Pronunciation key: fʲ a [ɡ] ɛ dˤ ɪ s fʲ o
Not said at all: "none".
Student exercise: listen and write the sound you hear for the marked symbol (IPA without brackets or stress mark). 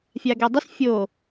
ɡ